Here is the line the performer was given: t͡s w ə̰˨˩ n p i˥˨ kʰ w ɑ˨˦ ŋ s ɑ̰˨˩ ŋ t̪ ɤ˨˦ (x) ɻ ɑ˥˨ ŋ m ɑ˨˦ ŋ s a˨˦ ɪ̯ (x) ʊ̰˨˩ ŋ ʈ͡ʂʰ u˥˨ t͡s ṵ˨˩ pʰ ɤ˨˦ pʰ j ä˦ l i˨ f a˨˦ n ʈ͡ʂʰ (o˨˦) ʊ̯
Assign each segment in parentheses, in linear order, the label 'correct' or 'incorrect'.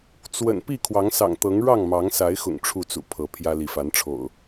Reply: incorrect, correct, incorrect

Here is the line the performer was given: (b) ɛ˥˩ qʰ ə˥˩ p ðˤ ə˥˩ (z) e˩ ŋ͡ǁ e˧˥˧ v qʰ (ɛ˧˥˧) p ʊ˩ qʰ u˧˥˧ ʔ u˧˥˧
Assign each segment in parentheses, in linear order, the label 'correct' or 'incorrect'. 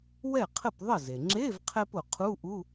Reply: incorrect, correct, incorrect

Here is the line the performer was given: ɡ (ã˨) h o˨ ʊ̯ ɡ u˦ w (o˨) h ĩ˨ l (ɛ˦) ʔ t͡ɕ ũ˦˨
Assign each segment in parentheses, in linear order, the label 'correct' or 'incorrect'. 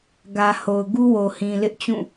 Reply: incorrect, correct, incorrect

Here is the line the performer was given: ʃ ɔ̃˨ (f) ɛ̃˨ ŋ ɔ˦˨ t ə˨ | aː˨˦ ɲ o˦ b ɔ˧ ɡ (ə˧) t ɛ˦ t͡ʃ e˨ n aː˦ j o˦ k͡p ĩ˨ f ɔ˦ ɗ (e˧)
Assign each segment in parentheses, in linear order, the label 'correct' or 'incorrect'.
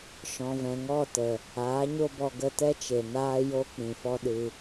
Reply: incorrect, correct, incorrect

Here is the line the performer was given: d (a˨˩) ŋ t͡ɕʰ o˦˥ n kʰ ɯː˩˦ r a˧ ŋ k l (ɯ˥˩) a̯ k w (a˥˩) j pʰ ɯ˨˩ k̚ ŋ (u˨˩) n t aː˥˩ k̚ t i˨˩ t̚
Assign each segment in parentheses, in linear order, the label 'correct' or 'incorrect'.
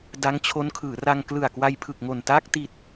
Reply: incorrect, incorrect, incorrect, incorrect

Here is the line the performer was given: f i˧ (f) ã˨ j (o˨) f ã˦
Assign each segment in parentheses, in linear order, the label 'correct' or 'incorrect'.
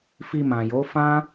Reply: incorrect, incorrect

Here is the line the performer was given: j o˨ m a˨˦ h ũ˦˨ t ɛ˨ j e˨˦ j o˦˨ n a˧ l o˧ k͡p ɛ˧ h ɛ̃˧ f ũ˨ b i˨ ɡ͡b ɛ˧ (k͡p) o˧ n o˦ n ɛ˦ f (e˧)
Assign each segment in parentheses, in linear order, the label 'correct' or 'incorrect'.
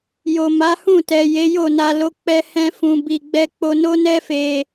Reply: correct, correct

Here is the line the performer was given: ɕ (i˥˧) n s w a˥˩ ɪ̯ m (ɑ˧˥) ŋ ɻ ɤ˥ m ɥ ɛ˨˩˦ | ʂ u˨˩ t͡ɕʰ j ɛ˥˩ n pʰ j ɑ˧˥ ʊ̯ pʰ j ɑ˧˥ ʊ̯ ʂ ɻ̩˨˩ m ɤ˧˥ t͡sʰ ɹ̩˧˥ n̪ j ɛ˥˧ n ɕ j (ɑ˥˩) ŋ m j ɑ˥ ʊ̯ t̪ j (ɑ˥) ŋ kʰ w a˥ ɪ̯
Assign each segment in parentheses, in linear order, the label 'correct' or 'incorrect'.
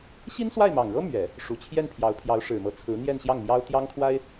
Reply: incorrect, incorrect, correct, correct

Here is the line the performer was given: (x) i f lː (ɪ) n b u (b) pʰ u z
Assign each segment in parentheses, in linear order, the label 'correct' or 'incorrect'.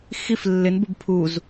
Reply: correct, correct, correct

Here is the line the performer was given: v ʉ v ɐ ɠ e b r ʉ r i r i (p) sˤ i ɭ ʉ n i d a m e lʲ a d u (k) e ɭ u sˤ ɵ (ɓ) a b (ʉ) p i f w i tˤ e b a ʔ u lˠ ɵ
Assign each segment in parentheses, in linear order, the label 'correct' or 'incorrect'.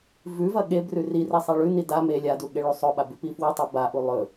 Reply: incorrect, incorrect, correct, correct

